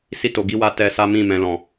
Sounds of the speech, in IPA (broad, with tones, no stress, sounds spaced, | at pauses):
s i˧ t o˨ ɡ i˧ w a˧ t ɛ˧ s a˦ m ĩ˦˨ m ɛ̃˨˦ l ɔ̃˧